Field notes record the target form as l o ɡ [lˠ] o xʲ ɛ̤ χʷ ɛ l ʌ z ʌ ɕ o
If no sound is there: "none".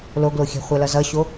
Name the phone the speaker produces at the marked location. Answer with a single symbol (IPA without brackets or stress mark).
l